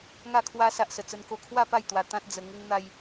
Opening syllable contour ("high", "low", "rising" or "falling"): falling